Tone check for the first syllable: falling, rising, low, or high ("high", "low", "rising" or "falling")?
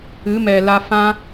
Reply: rising